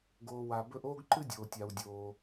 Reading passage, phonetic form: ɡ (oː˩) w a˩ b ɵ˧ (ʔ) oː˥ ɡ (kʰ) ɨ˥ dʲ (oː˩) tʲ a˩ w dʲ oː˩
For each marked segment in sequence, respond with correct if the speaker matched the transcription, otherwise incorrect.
correct, correct, incorrect, correct

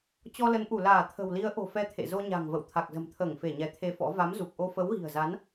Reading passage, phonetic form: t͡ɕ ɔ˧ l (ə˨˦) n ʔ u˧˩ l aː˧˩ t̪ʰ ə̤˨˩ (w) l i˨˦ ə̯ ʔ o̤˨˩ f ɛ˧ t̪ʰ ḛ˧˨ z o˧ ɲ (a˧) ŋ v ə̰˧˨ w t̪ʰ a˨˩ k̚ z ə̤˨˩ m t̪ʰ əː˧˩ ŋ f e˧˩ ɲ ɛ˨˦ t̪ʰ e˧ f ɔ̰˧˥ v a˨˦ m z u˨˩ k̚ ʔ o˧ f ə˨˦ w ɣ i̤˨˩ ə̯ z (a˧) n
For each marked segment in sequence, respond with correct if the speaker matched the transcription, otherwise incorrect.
correct, correct, incorrect, incorrect

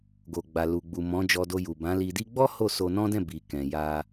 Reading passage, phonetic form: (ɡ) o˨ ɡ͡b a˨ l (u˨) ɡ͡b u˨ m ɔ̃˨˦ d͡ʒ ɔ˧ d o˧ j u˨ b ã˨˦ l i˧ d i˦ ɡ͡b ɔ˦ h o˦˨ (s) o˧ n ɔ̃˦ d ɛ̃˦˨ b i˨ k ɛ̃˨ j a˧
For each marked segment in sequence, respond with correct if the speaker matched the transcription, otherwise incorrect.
correct, correct, correct

